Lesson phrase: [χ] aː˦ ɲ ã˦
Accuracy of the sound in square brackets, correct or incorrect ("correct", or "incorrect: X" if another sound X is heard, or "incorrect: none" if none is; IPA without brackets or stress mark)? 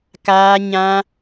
incorrect: k